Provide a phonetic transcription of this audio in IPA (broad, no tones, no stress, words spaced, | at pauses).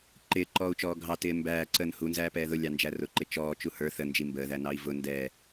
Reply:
ǃɪːǃɔːu̯t͡ʃɔː ɡʱɑtɪː mbæːǀəːn hunzæːpɛː ðʊlʲɑnd͡ʒæ rʊǃɪ t͡ʃɔːt͡ʃu hə˞ θənd͡ʒi mbəːðænɑi̯ vʊ ndɛː